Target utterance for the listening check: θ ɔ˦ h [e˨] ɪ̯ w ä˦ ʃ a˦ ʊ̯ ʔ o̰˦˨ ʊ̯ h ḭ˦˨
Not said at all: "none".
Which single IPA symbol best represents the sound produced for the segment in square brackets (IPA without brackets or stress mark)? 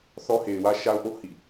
e˨